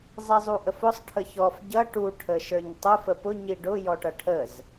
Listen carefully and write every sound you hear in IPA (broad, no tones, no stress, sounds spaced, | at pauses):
zˤ ɛ zˤ u ʔ ə f ʊ sˤ ʈʰ ə ç ɔ f ɟ ʌ ʈ u ʈʰ ə ʃ ə˞ ɲ tˤ ʊ f ə p ʊ ɲ i ɖ ʊ j ɔ ʈ ʌ ʈʰ ə z